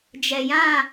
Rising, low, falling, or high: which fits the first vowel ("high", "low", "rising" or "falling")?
low